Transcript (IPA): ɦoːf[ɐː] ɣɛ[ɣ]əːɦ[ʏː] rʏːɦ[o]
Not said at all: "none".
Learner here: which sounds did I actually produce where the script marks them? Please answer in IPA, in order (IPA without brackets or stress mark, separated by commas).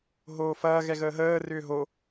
ɐː, ɣ, əː, o